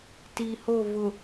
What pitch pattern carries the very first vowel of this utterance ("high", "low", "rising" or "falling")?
low